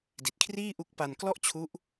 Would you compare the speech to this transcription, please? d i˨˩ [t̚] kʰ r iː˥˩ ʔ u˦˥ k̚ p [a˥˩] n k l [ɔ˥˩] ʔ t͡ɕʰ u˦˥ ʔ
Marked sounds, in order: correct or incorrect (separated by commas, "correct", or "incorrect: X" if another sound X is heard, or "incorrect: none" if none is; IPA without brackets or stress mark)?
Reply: correct, incorrect: a˧, correct